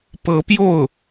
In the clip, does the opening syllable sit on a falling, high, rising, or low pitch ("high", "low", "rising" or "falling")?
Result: rising